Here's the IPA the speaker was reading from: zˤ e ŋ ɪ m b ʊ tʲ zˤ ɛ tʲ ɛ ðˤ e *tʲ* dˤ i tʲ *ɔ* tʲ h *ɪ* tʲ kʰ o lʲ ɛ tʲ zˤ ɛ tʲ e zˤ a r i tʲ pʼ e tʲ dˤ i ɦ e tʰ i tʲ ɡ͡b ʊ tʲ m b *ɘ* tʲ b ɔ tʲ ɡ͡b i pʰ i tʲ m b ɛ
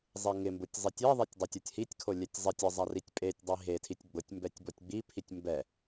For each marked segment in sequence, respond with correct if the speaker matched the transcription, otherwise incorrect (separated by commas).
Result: correct, correct, incorrect, incorrect